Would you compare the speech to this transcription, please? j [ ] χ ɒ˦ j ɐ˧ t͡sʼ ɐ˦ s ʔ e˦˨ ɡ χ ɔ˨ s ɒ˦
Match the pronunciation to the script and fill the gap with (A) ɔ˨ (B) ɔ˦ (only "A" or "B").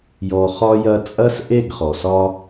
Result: A